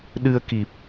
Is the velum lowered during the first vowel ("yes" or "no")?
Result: no